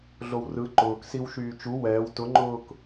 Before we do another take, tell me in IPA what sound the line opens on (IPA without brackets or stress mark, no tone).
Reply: ɮ